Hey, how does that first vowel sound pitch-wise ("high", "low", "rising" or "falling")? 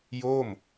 falling